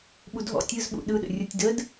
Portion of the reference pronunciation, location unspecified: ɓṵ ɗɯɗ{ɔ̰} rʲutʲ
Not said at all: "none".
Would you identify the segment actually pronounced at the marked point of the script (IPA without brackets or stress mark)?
ə̰